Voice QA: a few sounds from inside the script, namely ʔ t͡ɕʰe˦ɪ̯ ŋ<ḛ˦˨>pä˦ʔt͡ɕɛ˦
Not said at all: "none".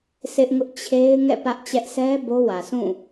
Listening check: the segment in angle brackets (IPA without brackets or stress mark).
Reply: ɛ̰˦˨